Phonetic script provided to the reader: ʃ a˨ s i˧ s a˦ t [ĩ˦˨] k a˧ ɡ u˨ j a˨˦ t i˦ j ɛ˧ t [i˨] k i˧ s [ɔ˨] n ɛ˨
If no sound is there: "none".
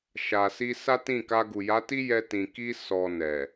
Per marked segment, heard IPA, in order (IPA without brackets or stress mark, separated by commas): ĩ˦˨, ĩ˨, ɔ˨